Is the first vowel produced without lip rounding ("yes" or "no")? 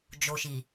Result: no